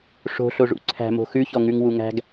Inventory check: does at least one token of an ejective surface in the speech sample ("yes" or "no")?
no